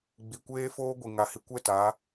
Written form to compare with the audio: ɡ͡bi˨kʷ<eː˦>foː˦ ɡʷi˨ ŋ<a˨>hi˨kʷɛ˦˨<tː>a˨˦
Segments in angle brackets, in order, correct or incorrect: correct, correct, incorrect: t

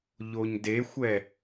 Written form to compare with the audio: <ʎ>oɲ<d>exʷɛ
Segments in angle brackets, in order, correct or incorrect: correct, correct

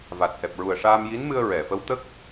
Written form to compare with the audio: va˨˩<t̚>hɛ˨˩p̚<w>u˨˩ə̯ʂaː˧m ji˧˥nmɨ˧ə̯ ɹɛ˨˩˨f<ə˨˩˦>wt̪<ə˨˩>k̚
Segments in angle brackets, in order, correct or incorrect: correct, incorrect: ɹ, incorrect: ə˧˥, incorrect: ə˦˥

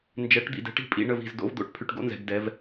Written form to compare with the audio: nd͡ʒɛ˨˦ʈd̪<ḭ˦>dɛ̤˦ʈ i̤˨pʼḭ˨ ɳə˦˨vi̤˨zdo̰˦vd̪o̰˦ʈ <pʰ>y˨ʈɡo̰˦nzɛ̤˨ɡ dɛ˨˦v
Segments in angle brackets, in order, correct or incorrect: incorrect: ḭ˨, correct

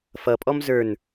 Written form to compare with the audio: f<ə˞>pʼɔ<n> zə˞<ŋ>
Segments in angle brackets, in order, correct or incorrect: incorrect: ʌ, incorrect: m, incorrect: n

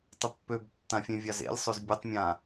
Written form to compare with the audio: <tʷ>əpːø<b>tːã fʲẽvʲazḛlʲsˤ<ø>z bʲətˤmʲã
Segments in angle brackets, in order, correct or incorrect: incorrect: tˤ, correct, correct

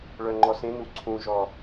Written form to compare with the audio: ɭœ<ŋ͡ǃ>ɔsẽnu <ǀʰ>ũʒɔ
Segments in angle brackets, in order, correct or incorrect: correct, correct

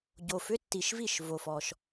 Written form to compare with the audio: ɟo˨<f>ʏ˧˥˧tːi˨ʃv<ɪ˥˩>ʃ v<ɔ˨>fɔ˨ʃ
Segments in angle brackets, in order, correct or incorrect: correct, incorrect: i˥˩, incorrect: o˨

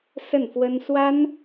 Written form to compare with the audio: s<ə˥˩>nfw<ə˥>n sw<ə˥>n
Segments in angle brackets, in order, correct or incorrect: correct, correct, incorrect: a˥

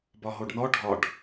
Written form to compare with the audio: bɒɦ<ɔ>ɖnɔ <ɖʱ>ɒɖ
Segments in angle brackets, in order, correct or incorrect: incorrect: o, correct

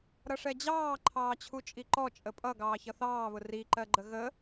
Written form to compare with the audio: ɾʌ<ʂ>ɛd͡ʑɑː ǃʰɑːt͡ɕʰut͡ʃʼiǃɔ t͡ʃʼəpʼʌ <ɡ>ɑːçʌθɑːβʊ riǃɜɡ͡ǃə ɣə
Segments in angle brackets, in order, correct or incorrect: correct, correct

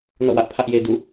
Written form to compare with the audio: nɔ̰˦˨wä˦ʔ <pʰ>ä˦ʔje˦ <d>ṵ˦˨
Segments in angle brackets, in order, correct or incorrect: correct, correct

